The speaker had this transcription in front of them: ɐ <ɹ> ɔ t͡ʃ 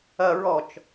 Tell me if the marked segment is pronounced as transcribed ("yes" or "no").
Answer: yes